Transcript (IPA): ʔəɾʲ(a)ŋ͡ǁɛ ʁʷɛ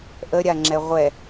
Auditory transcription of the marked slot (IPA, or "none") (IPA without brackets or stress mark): a